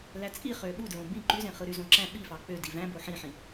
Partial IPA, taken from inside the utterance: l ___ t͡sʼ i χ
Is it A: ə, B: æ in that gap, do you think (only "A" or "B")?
B